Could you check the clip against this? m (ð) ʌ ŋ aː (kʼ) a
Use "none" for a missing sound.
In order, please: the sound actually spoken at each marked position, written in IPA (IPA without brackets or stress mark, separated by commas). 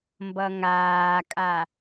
b, kʼ